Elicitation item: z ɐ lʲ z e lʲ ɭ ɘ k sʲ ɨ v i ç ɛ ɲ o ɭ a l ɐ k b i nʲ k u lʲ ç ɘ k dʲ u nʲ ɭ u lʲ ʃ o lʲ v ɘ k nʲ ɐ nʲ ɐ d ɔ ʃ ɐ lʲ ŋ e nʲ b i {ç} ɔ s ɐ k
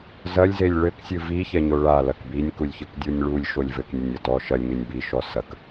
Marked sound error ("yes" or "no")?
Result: yes